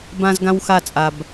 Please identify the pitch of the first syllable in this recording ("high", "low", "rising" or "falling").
high